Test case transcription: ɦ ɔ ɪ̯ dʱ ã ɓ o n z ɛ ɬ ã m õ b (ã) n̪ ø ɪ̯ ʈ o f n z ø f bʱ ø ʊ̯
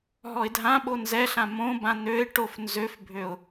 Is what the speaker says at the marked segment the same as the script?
yes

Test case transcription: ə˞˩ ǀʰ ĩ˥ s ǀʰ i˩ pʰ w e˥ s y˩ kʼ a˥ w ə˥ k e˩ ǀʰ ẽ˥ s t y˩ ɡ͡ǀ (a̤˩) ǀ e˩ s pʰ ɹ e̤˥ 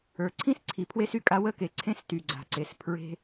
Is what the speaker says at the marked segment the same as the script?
yes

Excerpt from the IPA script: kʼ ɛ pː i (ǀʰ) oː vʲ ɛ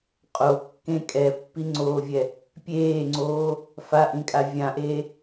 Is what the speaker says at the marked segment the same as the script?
no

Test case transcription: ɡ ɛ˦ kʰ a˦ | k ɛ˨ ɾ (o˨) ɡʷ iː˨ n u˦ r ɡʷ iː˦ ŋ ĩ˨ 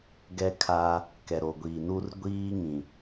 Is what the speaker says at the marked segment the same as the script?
yes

